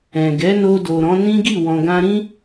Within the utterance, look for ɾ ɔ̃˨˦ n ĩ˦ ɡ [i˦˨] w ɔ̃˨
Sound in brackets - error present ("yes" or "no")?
no